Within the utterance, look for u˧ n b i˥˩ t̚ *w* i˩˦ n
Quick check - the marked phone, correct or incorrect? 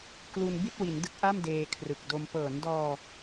correct